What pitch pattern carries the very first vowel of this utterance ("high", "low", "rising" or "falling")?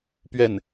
falling